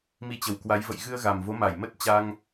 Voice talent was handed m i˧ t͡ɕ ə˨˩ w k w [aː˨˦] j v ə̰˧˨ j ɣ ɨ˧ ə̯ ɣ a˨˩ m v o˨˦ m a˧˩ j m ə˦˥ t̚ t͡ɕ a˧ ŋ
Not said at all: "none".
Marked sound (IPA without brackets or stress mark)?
a˨˦